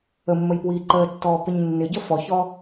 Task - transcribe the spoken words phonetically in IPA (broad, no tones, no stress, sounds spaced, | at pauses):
ə mː ə j p w iː ǃ əː tː ɔː p ɪ ɲ nː ɪ ɟ ə f ɔ ç ɔ